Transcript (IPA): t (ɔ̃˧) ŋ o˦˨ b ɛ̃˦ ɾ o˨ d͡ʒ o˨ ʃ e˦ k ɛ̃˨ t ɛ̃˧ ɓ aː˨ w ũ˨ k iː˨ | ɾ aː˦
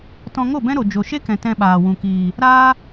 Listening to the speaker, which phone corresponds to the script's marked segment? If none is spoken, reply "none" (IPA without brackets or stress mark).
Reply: ɔ̃˧